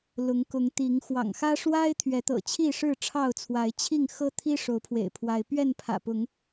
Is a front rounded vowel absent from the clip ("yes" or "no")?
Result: yes